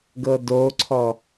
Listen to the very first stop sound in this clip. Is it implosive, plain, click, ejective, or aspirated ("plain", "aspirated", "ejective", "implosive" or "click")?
plain